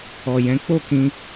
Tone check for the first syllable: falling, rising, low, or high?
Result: low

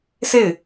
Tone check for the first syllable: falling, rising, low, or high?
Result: falling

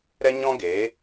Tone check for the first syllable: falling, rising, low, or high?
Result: high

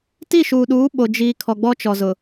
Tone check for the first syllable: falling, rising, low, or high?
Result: falling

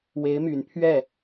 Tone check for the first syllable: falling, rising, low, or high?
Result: rising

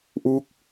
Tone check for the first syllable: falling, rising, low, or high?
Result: falling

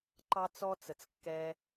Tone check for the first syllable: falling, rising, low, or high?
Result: high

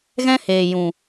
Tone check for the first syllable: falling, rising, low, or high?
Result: high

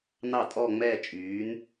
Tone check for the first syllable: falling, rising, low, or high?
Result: falling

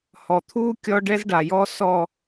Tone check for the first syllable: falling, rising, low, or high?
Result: low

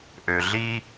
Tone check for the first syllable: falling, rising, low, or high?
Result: low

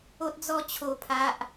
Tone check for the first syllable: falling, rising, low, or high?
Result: high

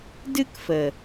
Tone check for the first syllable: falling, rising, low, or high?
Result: high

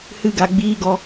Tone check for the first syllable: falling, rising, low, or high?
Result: high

